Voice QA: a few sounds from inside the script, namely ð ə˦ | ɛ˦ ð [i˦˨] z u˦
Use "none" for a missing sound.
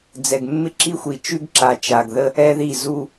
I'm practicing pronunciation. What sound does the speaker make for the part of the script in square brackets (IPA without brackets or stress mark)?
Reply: i˦˨